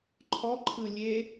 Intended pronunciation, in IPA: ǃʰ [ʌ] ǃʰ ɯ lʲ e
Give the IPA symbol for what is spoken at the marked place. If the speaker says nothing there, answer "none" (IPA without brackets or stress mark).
ɔ